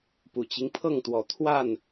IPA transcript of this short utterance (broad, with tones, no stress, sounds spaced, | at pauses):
p u˨˩ t͡ɕ i˦ ŋ pʰ ɤ˥˨ ŋ t̪ w ɔ˨˦ t̪ʰ w a˥˨ n